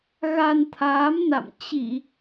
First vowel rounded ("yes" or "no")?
no